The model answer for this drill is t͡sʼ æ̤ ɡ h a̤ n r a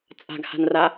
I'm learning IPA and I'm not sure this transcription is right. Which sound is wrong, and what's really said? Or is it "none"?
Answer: æ̤ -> a̤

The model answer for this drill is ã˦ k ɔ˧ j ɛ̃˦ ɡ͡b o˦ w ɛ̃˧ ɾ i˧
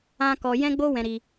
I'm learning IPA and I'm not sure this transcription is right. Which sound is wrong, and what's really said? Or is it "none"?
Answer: none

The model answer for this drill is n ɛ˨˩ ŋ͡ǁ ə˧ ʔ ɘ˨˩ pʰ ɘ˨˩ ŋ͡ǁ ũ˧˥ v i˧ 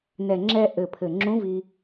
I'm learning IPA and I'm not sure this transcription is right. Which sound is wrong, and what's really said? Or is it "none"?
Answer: ə˧ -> ɛ˧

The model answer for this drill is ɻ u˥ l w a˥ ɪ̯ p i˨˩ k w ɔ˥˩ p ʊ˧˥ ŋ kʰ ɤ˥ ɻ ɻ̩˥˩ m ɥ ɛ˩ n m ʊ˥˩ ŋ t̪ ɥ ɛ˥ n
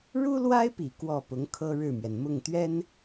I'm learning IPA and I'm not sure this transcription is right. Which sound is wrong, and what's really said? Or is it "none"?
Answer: none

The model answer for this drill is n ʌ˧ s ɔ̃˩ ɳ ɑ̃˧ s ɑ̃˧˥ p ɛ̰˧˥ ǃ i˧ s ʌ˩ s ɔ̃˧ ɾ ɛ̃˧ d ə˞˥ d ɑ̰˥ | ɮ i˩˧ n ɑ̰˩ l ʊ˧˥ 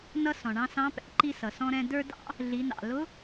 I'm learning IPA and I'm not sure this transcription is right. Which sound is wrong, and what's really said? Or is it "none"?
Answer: none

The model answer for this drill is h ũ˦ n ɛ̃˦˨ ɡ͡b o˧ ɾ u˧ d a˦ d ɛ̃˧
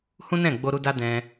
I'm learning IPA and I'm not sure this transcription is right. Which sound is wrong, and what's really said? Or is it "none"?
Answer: none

